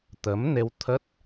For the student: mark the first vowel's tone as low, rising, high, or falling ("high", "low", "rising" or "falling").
rising